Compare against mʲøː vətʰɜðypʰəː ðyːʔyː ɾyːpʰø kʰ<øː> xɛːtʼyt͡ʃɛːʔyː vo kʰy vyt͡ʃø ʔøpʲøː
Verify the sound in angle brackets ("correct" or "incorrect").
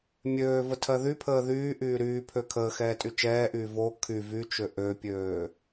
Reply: incorrect